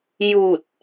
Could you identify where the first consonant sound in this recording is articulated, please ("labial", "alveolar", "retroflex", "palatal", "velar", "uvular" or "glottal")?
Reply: palatal